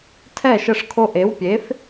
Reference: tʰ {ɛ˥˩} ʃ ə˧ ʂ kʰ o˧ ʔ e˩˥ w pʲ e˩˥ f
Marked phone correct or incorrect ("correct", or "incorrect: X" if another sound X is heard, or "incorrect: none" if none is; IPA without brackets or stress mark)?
correct